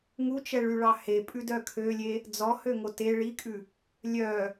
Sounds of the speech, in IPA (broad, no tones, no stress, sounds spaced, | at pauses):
ŋ u t͡ʃ ɛ ɭ y ɭ ɑ h e pʼ ʉ d œ kʰ ø lʲ e | d͡z ɔ h ø ŋ o t e ɭ i kʼ ʉ | lʲ œ